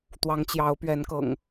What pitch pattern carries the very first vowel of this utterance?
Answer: rising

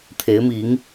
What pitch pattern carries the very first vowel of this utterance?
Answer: rising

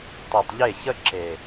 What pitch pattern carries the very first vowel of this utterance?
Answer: low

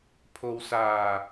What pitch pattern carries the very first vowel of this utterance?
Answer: low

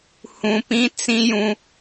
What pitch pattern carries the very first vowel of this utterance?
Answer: low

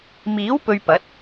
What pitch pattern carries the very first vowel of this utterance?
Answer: rising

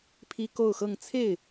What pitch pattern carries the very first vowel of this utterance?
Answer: high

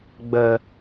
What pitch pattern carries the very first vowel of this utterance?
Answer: low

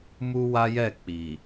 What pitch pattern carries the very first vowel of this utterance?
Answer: high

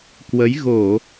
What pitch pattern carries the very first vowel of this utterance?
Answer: rising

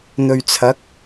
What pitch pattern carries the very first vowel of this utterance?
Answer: low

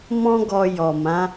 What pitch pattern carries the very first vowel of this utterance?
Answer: high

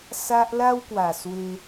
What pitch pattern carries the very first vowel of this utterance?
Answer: high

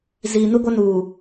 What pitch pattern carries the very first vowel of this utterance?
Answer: low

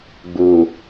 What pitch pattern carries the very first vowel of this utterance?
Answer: low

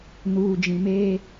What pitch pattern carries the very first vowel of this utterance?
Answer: low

